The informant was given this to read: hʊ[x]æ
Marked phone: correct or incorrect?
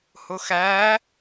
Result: correct